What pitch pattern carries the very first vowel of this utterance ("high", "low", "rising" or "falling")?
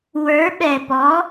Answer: rising